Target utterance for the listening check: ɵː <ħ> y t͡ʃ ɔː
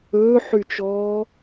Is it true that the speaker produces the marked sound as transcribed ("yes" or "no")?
yes